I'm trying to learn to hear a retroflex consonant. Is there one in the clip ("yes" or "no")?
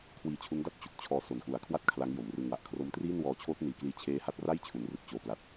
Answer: no